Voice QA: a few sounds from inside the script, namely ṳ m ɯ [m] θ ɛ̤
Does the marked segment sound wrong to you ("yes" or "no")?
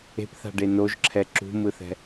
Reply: yes